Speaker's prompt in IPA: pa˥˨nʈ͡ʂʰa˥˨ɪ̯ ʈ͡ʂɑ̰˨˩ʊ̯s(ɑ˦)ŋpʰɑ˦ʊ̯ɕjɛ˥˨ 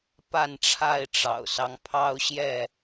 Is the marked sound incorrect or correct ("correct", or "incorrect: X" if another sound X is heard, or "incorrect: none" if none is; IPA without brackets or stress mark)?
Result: correct